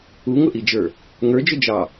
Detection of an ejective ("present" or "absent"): absent